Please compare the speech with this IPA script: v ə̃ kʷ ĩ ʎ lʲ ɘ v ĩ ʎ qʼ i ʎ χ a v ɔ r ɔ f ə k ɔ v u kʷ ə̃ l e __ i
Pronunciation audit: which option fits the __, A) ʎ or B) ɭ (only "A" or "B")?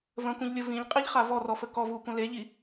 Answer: A